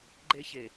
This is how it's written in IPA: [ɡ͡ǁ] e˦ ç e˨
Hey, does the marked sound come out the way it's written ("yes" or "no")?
no